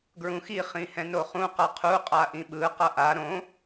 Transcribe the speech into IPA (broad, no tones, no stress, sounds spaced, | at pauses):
ɡ ɹ ũ x i χ ĩ h ɛ̃ n o χ ũ q ʌ qʰ u qʼ a ʔ ĩ ɓ ɯ q ʌ ʔ a ɾ õ